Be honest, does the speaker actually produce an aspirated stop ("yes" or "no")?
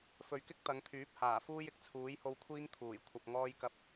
yes